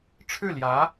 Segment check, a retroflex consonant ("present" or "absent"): present